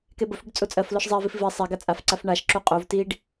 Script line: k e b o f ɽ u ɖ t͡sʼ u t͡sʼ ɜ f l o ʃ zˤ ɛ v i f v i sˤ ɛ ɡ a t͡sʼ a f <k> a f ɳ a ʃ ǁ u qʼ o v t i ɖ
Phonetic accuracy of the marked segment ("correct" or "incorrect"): incorrect